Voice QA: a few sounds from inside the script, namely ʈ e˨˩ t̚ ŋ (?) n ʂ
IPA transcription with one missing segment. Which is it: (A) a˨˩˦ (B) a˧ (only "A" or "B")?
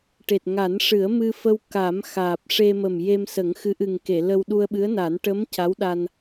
A